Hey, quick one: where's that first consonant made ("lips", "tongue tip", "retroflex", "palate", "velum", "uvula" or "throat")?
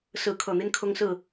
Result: tongue tip